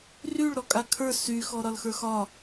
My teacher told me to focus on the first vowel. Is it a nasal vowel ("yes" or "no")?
no